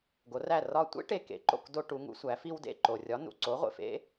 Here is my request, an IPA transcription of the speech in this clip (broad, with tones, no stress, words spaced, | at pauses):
ɡo˩˥ræ˥˩rɒ˥˩ tʷḛ˥ ʈe˧kḛ˩˥ ǃo̰˥˩k do˧ ʈu˩˥ŋṵ˩˥sʷæ˩˥ fi˧wdḛ˥˩ ǃo˩rʲɒ˩˥nṵ˩ǀo˩˥ ʁʷḛ˩fḛ˥